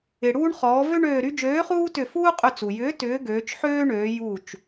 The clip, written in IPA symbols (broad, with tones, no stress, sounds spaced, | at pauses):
ɪ˩ ɽ uː˦ ɳ χ ɔː˩˧ v ø˦ ɳ øː˧˩ ɾ y˦ d͡ʒ øː˨˥ χ uː˦ t ʏ˧˩ f uː˦ qʼ ʏ˧˩ t͡s u˩ j ʏː˨˥ t ʏː˨˥ ɡ øː˩˧ t͡ʃ ħ øː˦ ɳ øː˩˧ j u˧˩ t͡ʃ